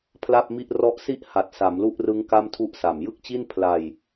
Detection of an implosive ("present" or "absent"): absent